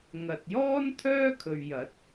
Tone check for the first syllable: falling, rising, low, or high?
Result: low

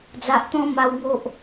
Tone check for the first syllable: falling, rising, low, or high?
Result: low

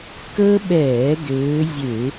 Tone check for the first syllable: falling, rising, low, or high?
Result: high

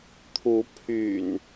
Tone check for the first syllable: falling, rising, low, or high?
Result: rising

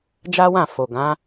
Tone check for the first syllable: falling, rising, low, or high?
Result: high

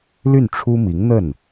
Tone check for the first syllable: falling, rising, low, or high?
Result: falling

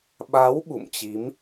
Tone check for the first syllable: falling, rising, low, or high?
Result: rising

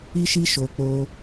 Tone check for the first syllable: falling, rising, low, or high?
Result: high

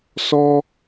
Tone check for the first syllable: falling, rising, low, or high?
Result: high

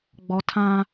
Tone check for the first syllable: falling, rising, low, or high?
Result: high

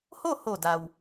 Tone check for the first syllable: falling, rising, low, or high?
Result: falling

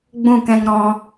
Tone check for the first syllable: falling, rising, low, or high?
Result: falling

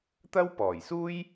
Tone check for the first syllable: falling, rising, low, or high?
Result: high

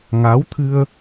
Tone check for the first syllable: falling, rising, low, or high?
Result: rising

